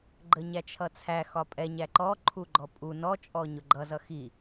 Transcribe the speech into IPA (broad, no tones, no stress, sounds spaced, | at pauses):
ɡ͡ǃ ə ɲ æ t͡ʃʰ ʌ t͡sʰ æ x ɒ pʼ ɛ ɲ æ ǃ ɔ ǃʰ u ɡ͡ǃ ɔ pʼ u n ɔ t͡ʃʼ ɔ ɲ ʊ ɡ͡ǃ ʌ z ʌ x i